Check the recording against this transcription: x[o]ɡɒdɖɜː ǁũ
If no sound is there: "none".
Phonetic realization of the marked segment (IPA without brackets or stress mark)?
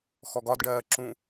ɔ